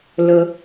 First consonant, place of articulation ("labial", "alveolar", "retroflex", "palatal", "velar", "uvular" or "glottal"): alveolar